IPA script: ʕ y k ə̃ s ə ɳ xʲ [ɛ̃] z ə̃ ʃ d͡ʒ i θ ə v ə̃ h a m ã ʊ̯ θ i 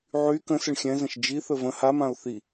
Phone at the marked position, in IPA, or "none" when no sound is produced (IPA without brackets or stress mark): ɛ̃